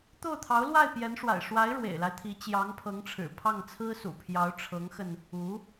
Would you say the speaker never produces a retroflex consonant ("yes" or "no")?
no